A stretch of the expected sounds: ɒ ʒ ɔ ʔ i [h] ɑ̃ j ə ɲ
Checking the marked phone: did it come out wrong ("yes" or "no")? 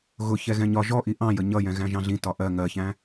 yes